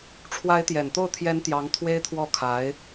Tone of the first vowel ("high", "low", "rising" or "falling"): rising